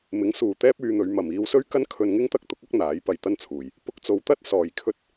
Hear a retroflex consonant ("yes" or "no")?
no